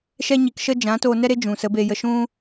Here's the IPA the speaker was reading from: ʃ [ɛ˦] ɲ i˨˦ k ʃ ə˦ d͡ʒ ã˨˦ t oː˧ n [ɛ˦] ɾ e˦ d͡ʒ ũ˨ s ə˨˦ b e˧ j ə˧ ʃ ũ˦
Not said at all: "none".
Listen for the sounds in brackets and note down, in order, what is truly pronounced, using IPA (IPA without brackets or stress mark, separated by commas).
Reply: ɛ˦, ɛ˦